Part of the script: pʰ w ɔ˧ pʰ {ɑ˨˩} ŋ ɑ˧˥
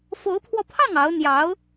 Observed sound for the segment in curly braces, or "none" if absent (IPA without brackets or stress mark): ɑ˥˩